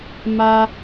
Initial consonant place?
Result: labial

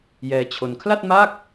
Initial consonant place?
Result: palatal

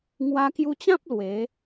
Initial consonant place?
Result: velar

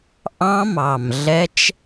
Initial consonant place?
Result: glottal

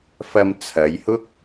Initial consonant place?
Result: labial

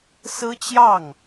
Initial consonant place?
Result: alveolar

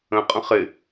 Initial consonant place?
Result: uvular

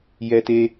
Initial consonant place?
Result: palatal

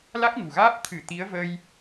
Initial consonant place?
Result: alveolar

